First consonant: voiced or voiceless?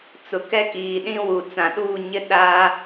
voiceless